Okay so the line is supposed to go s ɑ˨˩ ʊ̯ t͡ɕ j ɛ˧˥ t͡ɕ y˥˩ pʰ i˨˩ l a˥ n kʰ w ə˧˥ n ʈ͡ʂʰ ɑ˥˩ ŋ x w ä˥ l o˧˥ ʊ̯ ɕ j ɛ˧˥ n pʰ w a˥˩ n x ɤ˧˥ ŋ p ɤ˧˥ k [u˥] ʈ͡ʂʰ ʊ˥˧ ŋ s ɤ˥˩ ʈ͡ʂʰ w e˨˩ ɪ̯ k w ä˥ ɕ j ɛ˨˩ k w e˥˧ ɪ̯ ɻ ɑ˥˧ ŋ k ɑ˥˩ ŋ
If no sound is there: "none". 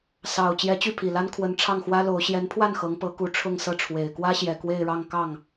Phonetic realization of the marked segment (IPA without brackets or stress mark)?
u˧˥